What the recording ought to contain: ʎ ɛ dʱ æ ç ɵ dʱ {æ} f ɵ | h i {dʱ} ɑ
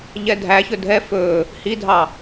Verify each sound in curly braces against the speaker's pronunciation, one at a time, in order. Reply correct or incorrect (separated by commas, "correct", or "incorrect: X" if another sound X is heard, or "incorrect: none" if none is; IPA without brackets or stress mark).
incorrect: ɛ, correct